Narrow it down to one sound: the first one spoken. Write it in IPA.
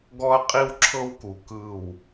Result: ɡ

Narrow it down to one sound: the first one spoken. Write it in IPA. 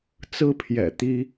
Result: t͡s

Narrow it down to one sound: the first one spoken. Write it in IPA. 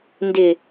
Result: n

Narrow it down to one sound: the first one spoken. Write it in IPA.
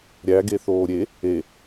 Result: ɾʲ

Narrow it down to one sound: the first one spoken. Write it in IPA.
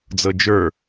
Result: d͡z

